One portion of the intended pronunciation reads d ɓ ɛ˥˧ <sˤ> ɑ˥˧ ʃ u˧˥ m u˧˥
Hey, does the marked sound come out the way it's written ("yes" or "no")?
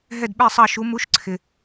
yes